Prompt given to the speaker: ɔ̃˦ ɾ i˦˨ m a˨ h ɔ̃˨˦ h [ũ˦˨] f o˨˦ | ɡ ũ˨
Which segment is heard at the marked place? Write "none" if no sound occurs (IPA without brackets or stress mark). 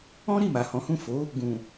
ũ˦˨